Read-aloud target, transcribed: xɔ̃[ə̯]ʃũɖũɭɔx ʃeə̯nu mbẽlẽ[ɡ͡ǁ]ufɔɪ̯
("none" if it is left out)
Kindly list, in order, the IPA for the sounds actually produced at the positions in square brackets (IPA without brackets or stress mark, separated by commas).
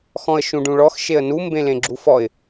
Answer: ə̯, ɡ͡ǁ